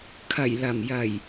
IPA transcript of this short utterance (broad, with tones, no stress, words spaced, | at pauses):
kʰɐ˨˩jlɐ˨˩mjɐ˨˩j